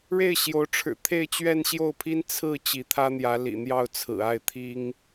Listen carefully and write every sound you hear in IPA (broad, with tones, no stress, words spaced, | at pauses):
ɻe˥˩ɪ̯ ɕjo˧˥ʊ̯ʈ͡ʂʰɻ̩˨˩ t̪ʰe˥˧ɪ̯t͡ɕɥɛ˥˧nɕjo˥˩ʊ̯pʰi˥n t͡sʰɹ̩˥˩ t͡ɕi˧˥t̪ʰä˥n̪jä˧˥ lḭ˨˩n̪jɑ˥˩ʊ̯t͡sʰɹ̩˨˩a˥˩ɪ̯ t̪ʰi˥ŋ